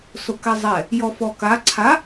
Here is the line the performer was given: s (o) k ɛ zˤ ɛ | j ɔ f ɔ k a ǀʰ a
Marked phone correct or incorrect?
correct